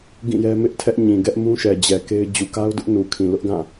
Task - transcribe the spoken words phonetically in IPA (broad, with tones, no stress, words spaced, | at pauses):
ɡĩ˦˨jɛ˦ mɪ˦ʔtʰɛ˦ʔɲĩ˨ ɡɛ˦ʔmũ˦ʃɛ˨d͡ʑɛ˨ ke˦ɪ̯ d͡ʑu˨ka˦ʊ̯dʊ˦ʔ nu˨kʰĩ˨lʊ˦ʔɡã˦˨